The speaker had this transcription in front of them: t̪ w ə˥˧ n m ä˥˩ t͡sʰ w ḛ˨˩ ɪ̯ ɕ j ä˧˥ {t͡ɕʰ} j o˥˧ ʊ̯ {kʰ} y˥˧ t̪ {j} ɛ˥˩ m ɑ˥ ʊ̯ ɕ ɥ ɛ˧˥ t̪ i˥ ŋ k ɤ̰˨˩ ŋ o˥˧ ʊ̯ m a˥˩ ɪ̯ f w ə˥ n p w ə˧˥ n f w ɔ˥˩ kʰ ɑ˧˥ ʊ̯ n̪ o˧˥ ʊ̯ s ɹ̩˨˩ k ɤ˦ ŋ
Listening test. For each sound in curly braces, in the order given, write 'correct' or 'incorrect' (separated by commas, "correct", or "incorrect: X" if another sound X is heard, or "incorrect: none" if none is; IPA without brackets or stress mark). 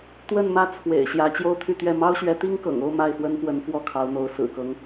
incorrect: t͡ɕ, incorrect: t̪ʰ, incorrect: ɥ